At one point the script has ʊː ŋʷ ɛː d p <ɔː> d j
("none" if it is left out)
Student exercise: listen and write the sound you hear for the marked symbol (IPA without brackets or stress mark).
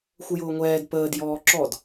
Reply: əː